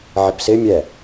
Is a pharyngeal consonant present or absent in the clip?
present